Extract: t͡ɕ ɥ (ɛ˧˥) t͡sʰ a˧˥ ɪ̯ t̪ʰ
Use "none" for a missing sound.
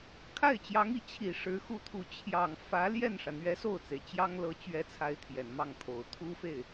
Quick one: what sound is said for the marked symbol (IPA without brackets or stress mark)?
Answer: ɛ˧˥